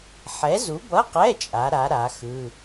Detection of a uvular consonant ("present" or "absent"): present